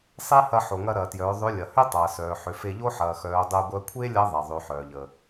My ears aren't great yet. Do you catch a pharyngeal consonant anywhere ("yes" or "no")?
yes